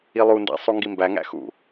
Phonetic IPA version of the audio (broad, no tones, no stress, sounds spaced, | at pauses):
i lˠ u n d æ̰ sˤ u ŋ ɡ i m b æ ŋ æ̰ x ṵ